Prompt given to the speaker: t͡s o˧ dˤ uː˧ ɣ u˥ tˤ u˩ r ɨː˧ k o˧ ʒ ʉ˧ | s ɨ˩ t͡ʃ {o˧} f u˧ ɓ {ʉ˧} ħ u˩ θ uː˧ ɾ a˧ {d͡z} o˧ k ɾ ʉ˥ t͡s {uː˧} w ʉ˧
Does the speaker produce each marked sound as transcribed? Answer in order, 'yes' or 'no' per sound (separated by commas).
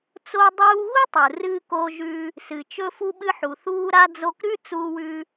no, no, yes, yes